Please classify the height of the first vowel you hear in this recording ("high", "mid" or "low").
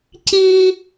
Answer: high